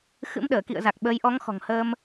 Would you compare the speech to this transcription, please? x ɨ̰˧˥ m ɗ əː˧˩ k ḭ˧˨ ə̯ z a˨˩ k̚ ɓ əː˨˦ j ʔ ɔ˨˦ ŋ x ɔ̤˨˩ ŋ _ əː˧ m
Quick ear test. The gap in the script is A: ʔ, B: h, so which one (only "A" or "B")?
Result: B